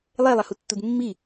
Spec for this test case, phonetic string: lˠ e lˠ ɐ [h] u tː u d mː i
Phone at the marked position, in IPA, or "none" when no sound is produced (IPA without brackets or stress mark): h